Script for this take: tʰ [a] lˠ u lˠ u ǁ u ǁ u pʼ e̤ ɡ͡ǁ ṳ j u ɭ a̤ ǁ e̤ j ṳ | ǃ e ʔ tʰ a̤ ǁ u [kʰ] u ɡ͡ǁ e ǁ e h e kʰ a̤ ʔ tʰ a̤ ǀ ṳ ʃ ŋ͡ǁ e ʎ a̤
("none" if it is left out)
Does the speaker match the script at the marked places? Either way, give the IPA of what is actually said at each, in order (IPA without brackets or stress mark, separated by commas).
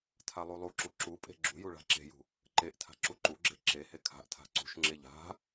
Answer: a, ǃ